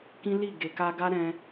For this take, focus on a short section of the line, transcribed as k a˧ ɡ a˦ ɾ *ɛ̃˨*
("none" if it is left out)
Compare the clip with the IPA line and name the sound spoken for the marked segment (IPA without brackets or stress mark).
ɛ̃˦